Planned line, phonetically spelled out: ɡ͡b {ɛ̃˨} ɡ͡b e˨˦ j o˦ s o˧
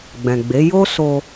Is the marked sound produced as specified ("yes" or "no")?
yes